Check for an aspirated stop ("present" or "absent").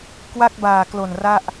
absent